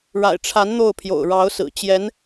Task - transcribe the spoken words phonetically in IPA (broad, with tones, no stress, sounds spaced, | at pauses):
ɻ a̰˨˩ ɪ̯ ʈ͡ʂʰ a˧˥ n n̪ o˥˩ ʊ̯ pʰ j o̰˨˩ ʊ̯ ɻ ɑ˧˥ ʊ̯ s ɹ̩˨˩ t͡ɕ j ɛ˧˥ n